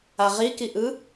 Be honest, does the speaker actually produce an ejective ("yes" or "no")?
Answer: no